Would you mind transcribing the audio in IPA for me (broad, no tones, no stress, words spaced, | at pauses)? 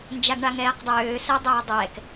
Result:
nd͡ʒaɡɳaŋɛːqdˤøː səːdˤøːdˤɛːk